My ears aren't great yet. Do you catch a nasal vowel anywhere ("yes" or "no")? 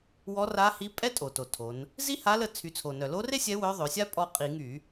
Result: no